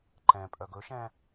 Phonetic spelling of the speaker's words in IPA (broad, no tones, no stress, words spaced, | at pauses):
ǃɛ̃ pʼœɡɵʃɛ̃